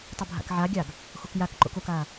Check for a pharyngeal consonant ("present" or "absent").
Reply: present